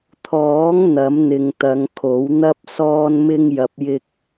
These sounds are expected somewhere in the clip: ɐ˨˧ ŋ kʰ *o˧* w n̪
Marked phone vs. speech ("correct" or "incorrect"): incorrect